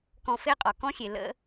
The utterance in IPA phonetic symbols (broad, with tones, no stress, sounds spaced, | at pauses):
k ɔ̃˧ f e˥ qʼ ɔ˩ k ɔ̃˥ xʲ e˩ l ə̰˧